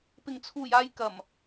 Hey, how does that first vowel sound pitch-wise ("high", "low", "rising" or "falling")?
low